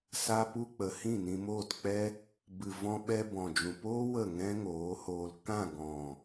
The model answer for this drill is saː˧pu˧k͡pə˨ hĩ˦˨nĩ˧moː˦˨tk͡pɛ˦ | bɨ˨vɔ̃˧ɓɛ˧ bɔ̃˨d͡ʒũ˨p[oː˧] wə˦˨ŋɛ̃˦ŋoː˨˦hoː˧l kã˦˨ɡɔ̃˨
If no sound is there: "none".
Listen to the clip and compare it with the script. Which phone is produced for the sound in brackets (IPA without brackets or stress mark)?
oː˦